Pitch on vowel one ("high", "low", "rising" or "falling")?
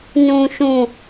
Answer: low